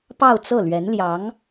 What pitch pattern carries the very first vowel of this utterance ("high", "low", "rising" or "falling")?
falling